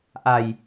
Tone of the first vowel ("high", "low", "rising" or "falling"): low